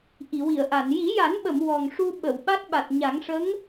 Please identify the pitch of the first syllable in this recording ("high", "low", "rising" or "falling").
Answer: low